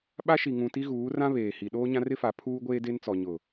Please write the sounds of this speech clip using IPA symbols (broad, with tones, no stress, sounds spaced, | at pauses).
ɓ a˦ ʃ i˨ ŋ ũ˨ t i˦ ɣ uː˨˦ r ã˦ β eː˨ h i˨ ɗ oː˦ ɲ ã˦ r ɪ˦ f a˨˦ pʰ uː˦ ɡʷ eː˦ d e˦ n t͡s ɔ˨ ɲ ʊ˨